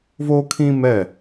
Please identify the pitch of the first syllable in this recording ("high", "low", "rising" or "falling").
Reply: high